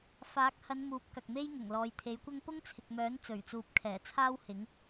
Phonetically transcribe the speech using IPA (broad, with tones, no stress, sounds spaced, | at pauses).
f aː˨˥ k̚ h ɐ˨˧ n m uː˨˥ p̚ k ɐ˨ k̚ m e˥ j ŋ ʊ˨˩ ŋ l ɔː˨ j t̪ʰ e˨˥ j kʷ ɐ˥ ŋ p ʊ˥ ŋ t͡sʰ ɪ˨ k̚ m œː˨˥ n t͡s ɵ˨˩ ɥ t͡s uː˨ p̚ kʰ ɛː˨˩ t͡sʰ aː˥ w h ɪ˨˥ ŋ